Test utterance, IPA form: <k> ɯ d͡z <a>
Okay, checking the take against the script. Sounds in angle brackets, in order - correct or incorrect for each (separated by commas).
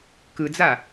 correct, correct